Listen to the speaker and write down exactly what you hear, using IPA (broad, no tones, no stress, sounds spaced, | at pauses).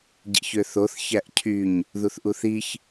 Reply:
ɟ ḭ ç ø θ o θ ç æ ʔ cʰ y ɲ | ð u θ ʔ u θ i ç